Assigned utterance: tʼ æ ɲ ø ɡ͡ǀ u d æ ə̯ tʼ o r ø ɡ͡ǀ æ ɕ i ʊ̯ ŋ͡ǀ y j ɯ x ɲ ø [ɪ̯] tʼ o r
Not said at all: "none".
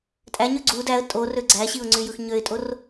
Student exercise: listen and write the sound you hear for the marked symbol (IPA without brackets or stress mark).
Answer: ɪ̯